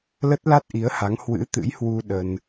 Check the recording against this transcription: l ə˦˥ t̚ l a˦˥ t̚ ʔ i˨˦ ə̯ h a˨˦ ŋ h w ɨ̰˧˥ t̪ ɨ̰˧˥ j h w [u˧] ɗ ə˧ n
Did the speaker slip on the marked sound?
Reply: no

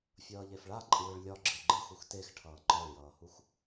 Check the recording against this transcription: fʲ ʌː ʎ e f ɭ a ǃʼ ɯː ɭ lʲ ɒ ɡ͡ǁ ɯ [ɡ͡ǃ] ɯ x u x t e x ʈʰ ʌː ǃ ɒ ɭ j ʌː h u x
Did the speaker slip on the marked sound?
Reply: no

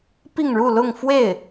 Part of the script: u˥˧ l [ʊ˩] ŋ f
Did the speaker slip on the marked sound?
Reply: yes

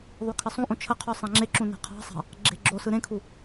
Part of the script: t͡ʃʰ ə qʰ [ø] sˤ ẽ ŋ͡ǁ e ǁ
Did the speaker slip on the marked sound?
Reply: yes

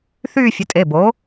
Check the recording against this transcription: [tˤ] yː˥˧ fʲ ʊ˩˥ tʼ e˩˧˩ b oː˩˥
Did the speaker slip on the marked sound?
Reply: yes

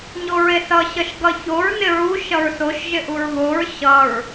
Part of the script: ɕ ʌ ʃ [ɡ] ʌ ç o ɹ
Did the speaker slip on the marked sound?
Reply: no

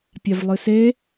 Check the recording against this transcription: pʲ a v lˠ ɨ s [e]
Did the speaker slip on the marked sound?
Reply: no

